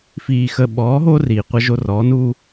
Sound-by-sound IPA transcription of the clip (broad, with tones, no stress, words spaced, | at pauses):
fiː˨xə˨ɓɔː˨˦ ɦo˦ riː˨qʷə˦ʒo˦ rɔː˨˦nuː˦